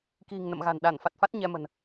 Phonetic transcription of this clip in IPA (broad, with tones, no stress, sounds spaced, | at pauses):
k i̤˨˩ ŋ n ə̰˧˨ m ɣ a̤˨˩ n ɗ a˧˩ n f a˨˩ t̚ f a˦˥ t̚ ɲ ɛ˧ m ə̤˨˩ n